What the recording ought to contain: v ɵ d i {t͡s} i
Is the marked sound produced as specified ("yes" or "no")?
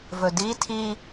no